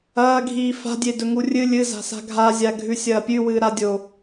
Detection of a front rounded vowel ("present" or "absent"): absent